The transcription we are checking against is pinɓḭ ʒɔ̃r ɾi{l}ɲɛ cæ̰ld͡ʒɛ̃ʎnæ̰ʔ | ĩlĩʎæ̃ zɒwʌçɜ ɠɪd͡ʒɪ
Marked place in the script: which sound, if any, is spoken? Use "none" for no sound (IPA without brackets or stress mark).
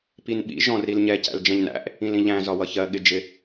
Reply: l